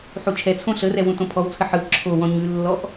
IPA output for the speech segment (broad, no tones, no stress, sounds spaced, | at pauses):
ħ u t͡ʃʰ ɛ t͡sʰ õ ɬ ə r ɛ w ũ t õ pʰ ɔ w t͡sʰ ə ħ ɯ ǁʰ o w ɔ̃ ɲ ʉ lː ɔ ʔ